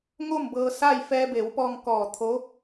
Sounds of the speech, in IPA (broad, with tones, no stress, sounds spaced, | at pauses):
ŋ o˥˨ m b ɤː˧ s a˥˨ j f ɛː˧ b e˩˧ w p ɔː˧ ŋ k ɔː˧˩ t̪ʰ o˧˥